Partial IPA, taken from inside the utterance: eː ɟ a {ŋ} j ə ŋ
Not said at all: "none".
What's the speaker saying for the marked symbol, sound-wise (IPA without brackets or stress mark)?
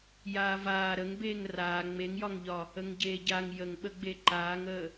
ŋ